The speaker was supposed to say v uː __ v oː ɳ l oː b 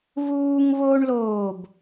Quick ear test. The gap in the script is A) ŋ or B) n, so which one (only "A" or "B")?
A